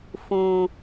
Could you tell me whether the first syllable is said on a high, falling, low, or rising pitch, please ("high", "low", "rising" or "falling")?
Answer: low